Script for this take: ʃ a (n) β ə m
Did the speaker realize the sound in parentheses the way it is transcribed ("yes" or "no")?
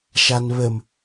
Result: yes